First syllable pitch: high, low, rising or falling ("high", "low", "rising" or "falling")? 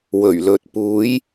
low